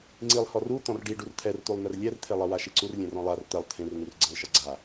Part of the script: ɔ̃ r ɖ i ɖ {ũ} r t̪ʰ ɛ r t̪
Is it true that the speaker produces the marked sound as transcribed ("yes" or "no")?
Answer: no